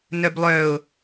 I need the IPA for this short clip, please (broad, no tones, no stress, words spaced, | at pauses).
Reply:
nœblˠœʊ̯